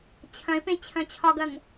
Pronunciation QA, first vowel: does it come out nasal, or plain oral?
nasal